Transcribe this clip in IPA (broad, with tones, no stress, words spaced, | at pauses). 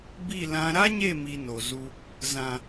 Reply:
bi˦˨lã˧ ɾa˦ɲe˦˨ mi˧no˨zu˧ | zã˨